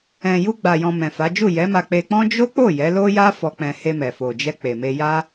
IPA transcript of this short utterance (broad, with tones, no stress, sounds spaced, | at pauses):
ɛ̃˨ j u˧ ɡ͡b a˨ j ɔ̃˨ m ɛ̃˨ f a˨˦ d͡ʒ u˦˨ j ɛ˨˦ m a˧ k͡p e˧ k͡p ɔ̃˦ d͡ʒ o˦ k͡p o˦˨ j ɛ˨˦ l o˦ j a˦ f ɔ˧ k͡p ɛ̃˧ h e˧ m ɛ˨ f o˨ d͡ʒ ɛ˧ k͡p e˨ m e˧ j a˦